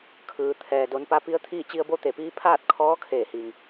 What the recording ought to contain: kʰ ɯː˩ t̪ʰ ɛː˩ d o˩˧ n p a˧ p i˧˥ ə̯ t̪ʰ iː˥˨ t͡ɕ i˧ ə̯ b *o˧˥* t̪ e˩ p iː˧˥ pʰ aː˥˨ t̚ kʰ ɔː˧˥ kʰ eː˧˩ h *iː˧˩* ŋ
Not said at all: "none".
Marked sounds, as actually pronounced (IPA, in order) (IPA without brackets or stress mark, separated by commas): o˧˥, iː˩